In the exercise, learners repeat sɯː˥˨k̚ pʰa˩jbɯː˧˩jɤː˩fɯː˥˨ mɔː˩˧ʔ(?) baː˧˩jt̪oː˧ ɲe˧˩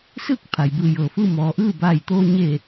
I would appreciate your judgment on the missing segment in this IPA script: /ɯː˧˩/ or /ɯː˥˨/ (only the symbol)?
ɯː˥˨